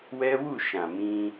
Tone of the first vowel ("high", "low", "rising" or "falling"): high